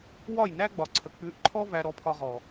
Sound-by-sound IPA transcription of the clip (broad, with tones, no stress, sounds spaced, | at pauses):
w ɒ˦˨ j n æ˦ ɡ͡b ɒ˨ ǀʰ ə˨ k͡p ʉ˨˦ ʔ ǃʰ ɔ˦ v æ˧ ɾ ɔ˧ pʰ ɒ˧ ʁ ɔ˨